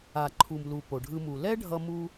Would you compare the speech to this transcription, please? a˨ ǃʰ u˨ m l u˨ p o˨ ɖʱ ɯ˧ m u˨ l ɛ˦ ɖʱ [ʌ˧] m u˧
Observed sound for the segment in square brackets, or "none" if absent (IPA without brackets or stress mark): ʌ˧